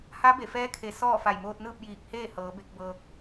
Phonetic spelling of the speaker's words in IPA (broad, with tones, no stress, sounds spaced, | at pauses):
h a˧˥ b e˧˩ f ɛː˧˥ kʰ e˩˧ s ɔː˥˨ f a˧˩ j m oː˧ t̚ n ɯː˥˨ p̚ j iː˧˩ k̚ h eː˥˨ h ɤː˩˧ b e˧ k̚ b ɤː˧ k̚